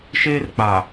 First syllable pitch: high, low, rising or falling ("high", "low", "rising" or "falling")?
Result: high